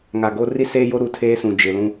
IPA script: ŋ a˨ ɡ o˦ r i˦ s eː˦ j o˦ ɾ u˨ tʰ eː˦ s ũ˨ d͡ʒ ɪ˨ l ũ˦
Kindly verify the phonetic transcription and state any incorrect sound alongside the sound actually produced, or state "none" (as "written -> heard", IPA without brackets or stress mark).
none